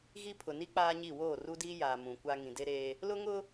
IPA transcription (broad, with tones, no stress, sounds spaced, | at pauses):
ɣ i˦ pʰ ʊ˨ n i˦ k͡p aː˦ ɲ i˦˨ w oː˦˨ r u˦ d iː˦ j aː˨ m ũ˨ kʷ a˦ ŋ ĩ˨ d e˦ ɾ eː˦ | l ʊ˦ ŋ ʊ˦